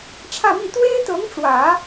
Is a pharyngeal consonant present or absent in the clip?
absent